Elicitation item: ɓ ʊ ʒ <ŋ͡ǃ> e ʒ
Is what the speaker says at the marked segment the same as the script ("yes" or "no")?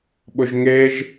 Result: no